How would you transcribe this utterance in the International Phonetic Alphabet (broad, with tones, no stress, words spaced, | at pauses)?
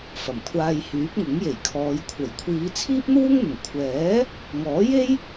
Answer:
fɐ˨˩mkʷʰaː˧jhyː˨˥p̚ŋʊ˨˥ŋ je˨˩jkʰɔː˨˧j kʷʰɐ˨˩jkʷʰiː˨˧ t͡sʰiː˥p̚n̪uː˥ŋn̪ʊ˨˩ŋ kʷʰɛː˨˥ | ŋɔː˨˥je˥j